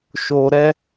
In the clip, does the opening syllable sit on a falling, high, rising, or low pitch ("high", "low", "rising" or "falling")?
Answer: low